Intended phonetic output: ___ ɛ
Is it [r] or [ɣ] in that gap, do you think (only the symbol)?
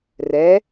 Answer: r